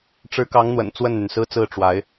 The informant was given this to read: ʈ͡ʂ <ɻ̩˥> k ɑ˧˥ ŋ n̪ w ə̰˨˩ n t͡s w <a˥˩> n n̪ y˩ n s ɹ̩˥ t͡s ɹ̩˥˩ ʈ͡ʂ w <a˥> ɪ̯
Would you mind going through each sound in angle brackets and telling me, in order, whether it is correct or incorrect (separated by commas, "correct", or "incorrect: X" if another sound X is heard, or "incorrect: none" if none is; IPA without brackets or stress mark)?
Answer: incorrect: ɻ̩˧˥, incorrect: ə˥˩, incorrect: a˧˥